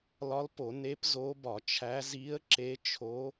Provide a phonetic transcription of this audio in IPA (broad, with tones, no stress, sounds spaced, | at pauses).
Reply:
l ɒ˧˥ l p o˧˩˧ n e˧˥ p z o˧˥ b ɒ˧˩˧ t͡ʃʰ æ˧˥ z i˧˥ ə̯ ǁ e˧˥ t͡ʃʰ o˧˥